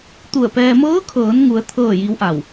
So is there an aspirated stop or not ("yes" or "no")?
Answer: yes